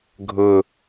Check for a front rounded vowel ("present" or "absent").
absent